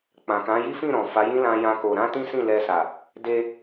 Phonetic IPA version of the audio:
k͡pã˨kã˨˦ ji˦fĩ˦˨ ɾɔ̃˨fa˨˦jĩ˦ lã˦jã˦ko˧ ɾã˦tĩ˦sĩ˦˨ lɛ˧sa˨ | de˧

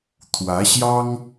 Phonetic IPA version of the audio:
t̪ʰwä˧˥ɕjɑ˥ŋ

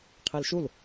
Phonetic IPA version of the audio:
qʰelʃul

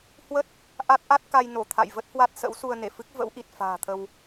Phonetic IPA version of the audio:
hwə˦˥t̚ | ʔa˦˥t̚ʔa˦˥t̚ ka˧jno˧˩t̪ʰa̰˧˨j və˦˥t̚hwa˦˥t̚sə̰˧˥wsu˧ə̯ ne˧˩fɨ˦˥k̚ və̰˧˥wʔi˨˩t̚ fa̤ː˨˩t̪ʰə˧w

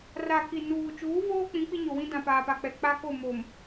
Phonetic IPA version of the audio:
ra˨ki˨ nuː˨ t͡ʃuː˨˦voː˦ k͡pĩ˨˦k͡pi˦ɲo˨wĩ˦ dã˨paː˨pa˨ k͡pɛ˨ k͡pa˦ko˦˨mo˨m

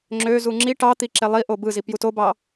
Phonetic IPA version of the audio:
ŋ͡ǁø zuŋ͡ǁi ʈɑt̪iǁe lˠi ʔobɯzi pjutobɑ

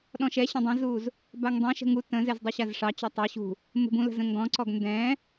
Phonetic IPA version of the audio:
ɗɔ̃ʃɛɕə̃ dˤə̃zuz | baŋdˤɛ̃ʃə̤ ŋu tə̃zɛz dˤɛɕazʂɑt͡ɕɔ tˤə ɕṳ | mə̤bũlə̤z ə̃ŋɡɔ̃ǀɔɡ ndɛ̃

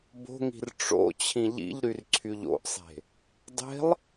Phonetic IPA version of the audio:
bo̤ŋi̤r ʈ͡ʂo̰ t͡ɕʰĩʎḭʎɾyr ǀʰyʎo̰ʔsˤe̤ | dˤe̤lˠ

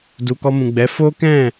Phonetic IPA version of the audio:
du˧ kɔ˧mũ˨ɡ͡bɛ˨˦ fo˦kɛ̃˦˨

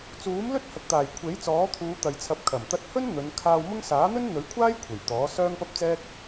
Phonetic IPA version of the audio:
t͡suː˨˥mlɵ˥t̚ hɐ˨k̚t̪aː˨˩j kʷʰe˨˥j t͡sɔː˨˥t̪ʰuː˨˧ t̪ɐ˨jt͡sʰɐ˨˥p̚kʰɐ˨˩m t̪ɐ˧t̚hɵ˥n n̪ɵ˨˧n kʰaː˧wmʊ˥ŋ saː˨˥n̪ɵ˥nn̪ɵ˨˥ɥkʷʰaː˥j kʷʰe˨˩jt̪ɔː˨˥ sœː˥ŋpɐ˥p̚t͡sɛː˥k̚

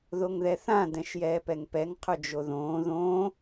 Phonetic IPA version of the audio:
ðoŋðɛθã dɛ̃ʃjɛːpɛŋpɛŋ qʰɵd͡ʒoðõː ðõː

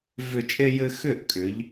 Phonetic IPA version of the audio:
vʏ˧˩t͡ʃʼe˧ jɘ˧ xʏ˥˩ʔkʼʏ˩˧ʎ

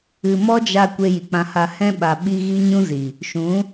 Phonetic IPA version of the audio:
ɨ˨mɔ˦d͡ʒa˧ kʷe˧ji˨k͡pã˧ha˧ hɛ̃˦ ɓa˨ɓi˧ ɣi˦ɲũ˦zi˨ | ʃũ˨˦

